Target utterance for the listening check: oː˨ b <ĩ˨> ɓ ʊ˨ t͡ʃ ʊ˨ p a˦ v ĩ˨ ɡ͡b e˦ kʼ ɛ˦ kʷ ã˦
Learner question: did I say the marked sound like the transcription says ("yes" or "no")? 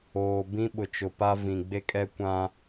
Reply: no